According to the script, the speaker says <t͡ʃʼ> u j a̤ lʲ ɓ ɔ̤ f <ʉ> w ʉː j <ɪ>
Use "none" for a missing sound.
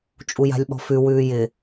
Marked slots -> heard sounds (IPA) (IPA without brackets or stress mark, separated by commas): t͡ʃʼ, ʉ, ɪ